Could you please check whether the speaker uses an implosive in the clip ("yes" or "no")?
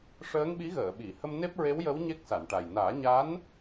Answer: yes